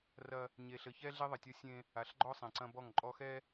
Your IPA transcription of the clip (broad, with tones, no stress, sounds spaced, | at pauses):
r ɐ˦ | ɲ e˨ ɬ ɘ˨ ç ɛ˦ ɮ e˦ ðˤ ɐ˨ tʲ ɔ˦ sʲ ẽ˦ | a˨ ɬ ɡ͡ǃ ɔ˦ sˤ ẽ˨ ǀ ɐ̃˦ b ɔ˦˨ ŋ ǃʼ ɔ˦ x ɛ˦